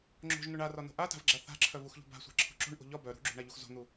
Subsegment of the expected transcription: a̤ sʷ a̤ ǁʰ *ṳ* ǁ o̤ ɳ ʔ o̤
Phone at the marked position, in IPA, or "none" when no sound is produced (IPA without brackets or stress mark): ṳ